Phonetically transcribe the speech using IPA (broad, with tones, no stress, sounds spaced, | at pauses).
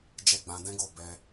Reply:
d͡ʒ ɛ˦ ɡ͡b ã˧ d ɛ̃˦ ɡ o˦˨ b ɛ˧